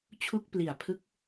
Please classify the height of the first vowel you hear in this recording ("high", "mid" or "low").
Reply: high